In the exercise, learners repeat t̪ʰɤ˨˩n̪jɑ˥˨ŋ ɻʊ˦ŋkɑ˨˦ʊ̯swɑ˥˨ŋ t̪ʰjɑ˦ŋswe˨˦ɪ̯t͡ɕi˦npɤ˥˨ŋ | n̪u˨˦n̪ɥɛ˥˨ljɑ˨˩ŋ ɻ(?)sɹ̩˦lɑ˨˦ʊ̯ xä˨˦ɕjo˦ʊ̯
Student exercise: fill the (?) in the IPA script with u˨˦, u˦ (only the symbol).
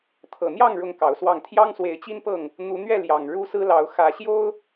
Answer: u˦